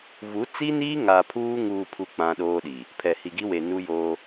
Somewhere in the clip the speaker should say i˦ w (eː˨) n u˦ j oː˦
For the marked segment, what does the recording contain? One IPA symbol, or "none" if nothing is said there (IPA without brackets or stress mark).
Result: e˨